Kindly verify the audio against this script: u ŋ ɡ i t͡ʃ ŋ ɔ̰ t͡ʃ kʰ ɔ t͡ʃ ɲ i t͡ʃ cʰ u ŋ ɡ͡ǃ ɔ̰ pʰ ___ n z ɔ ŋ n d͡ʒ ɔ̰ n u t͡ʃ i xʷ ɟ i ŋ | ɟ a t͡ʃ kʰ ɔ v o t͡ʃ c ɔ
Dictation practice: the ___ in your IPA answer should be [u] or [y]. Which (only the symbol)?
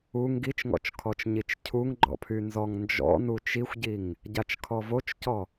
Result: y